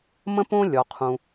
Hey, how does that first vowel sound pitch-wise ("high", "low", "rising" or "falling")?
high